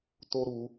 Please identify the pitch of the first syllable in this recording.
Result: high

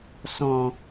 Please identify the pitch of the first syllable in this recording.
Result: low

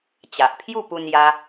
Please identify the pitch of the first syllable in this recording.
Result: low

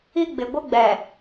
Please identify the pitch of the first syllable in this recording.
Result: high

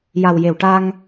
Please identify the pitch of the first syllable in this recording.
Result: low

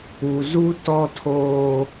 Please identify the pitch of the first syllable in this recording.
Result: low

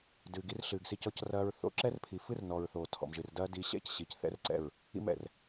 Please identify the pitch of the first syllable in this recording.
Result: low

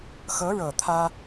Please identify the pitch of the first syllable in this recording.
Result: rising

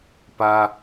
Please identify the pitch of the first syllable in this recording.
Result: high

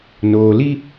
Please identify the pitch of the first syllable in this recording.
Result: low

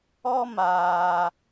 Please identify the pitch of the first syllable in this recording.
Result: high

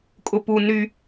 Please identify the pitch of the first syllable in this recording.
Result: low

